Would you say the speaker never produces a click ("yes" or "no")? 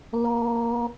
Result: yes